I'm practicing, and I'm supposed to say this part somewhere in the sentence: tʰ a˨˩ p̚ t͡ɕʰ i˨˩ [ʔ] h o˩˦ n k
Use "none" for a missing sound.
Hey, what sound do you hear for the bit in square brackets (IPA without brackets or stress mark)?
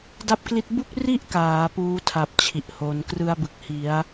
ʔ